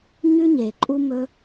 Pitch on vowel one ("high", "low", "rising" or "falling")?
high